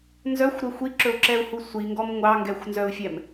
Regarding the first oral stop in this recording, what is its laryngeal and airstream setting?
click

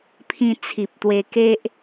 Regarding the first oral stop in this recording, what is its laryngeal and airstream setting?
aspirated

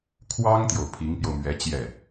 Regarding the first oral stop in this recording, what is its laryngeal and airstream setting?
aspirated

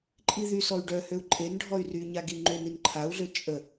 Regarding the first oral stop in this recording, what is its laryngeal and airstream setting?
click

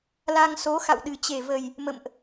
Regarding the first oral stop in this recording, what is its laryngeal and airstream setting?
implosive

